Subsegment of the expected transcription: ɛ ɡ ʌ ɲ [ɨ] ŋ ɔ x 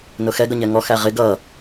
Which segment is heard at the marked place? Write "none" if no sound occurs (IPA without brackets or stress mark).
ɛ